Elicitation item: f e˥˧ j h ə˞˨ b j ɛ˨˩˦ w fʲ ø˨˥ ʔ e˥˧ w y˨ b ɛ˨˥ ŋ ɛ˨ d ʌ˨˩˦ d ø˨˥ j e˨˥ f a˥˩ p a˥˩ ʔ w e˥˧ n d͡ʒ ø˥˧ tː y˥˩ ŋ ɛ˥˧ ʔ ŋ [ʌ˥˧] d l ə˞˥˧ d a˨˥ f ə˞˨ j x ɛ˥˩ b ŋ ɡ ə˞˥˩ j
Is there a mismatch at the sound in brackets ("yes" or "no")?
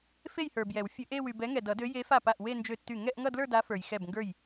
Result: no